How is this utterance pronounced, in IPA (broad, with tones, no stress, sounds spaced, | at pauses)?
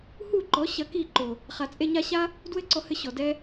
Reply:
h u˦˨ ǃ ɔ˨˦ ɕ ɐ˧ k i˦˨ ǃ o˨ | χ a˨ t͡sʼ e˧ ɲ a˧ ɕ a˦ | d w ɘ˦ ǀ ɔ˧ h ɘ˧ ɕ ɔ˨ d ɛ˦